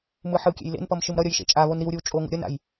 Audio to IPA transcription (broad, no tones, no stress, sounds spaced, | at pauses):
m ɯ ħ ɯ kʲ ḛ j l ḛ n p ʌ m ʃ ɯ m ɾ ʌ ɾʲ ʌ j ʃ ḛ t͡ʃʼ a β o n ɾ i w ɾʲ ɯ w t͡ʃʼ o ŋ ṵ ɾʲ ʌ n a̰ j